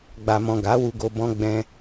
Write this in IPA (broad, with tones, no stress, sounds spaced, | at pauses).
ɡ͡b a˨ m ɔ̃˨ ɡ a˨˦ w u˧ ɡ o˧ b ɔ̃˧ ɡ͡b ɛ̃˧